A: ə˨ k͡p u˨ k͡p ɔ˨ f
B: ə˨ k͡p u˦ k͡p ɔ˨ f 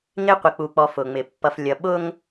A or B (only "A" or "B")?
A